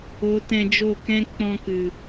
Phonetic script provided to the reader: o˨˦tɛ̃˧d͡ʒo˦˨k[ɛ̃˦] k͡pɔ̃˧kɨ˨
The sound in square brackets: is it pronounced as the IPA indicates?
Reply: yes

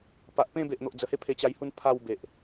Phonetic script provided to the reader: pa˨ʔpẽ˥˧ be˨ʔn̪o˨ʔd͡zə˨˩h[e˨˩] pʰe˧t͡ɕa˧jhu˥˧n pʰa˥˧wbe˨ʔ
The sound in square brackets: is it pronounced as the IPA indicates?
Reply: no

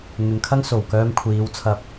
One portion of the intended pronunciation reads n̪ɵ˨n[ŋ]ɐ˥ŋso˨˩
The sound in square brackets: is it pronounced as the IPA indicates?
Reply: no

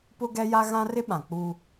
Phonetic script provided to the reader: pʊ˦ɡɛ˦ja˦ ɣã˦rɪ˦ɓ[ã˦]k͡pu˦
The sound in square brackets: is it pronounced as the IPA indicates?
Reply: no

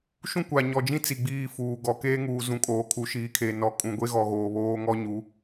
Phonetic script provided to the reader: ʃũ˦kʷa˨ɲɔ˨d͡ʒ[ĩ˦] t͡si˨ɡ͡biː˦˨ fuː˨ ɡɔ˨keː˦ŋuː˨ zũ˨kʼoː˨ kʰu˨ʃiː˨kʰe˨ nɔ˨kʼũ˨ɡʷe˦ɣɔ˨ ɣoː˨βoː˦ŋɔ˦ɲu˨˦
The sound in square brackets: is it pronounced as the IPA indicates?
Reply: yes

